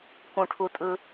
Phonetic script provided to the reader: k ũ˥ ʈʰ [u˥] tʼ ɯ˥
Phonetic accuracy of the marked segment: correct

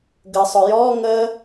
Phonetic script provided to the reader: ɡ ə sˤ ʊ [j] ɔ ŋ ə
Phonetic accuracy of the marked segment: correct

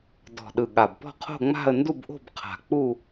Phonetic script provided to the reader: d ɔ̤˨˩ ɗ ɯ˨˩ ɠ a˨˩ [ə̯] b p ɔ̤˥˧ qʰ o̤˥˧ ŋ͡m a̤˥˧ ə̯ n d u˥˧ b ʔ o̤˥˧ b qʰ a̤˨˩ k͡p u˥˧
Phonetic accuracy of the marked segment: incorrect: none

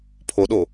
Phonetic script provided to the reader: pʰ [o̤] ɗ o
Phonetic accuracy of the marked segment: incorrect: o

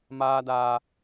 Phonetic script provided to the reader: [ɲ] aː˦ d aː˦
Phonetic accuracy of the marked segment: incorrect: m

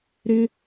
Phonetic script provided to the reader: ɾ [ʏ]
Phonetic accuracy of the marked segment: incorrect: ɪ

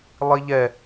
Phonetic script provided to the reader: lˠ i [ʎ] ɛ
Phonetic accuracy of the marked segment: correct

